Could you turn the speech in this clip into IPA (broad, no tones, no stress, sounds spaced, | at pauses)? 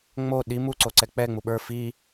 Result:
ŋ͡m o ɗ i m u ǀ o ǀ ɛ k͡p ɛ ŋ͡m u ɓ ə˞ f i